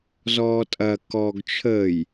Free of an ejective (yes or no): no